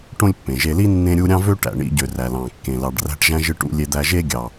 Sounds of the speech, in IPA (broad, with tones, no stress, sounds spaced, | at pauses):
ʈ õ˥ lʲ pː ẽ˩ ʒ e˧ l i˥ nː ẽ˥ ɾʲ u˥ ɾʲ ɑ̃˥ v ø˥ ʈ æ̰˩ ɳ ḭ˧ ɟ ø˩ r æ˩ l ɑ̃˩ kː ẽ˩ l ɑ˩ ɖ r æ̤˧ ʈ ʒ æ̃˧ ʒ ɯ˧ ʈ ṵ˧ lʲ e˧ d̪ æ˧ ʒ e˥ ɡʲ ɑ˩